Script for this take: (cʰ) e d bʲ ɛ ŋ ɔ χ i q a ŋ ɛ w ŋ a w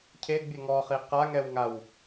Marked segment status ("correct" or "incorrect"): correct